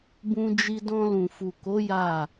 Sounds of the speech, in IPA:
b ũ˧ d͡ʒ i˧ d ɔ̃˧ l ũ˨ f u˨ k o˨˦ j a˦˨

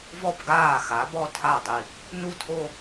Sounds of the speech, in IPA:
v ɔ˥˩ b ɡ aː˥˩ x a˩˥ b ɔ˥˧ tʰ a˥˩ dˤ i˧˩ | n u˥˩ tʰ o˥˧

